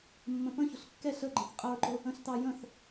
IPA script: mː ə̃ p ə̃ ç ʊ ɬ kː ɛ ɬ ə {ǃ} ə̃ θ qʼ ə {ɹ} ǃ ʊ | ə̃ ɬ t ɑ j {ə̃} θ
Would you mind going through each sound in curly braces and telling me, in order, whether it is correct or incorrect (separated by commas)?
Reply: incorrect, correct, correct